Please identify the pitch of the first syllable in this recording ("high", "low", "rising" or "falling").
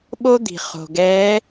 high